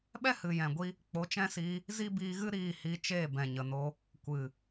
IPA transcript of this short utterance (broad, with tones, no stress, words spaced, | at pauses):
ɓɛ˦hɨ˨jɛ̃˨ɡʷi˧ | k͡po˨˦t͡ʃɛ̃˦siː˧ | zi˦biː˧ɣɨ˦ ɾiː˦˨hi˧t͡ʃeː˦˨ bɛ̃˨ɲə˨no˧ | kʷɨ˨